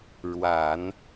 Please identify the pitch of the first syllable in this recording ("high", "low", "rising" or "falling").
low